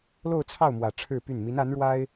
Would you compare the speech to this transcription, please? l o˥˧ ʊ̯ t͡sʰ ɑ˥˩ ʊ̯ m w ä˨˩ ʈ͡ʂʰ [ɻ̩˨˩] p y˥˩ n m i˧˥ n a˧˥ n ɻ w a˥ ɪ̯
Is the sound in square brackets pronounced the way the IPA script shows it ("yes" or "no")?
no